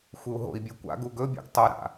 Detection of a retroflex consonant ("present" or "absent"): absent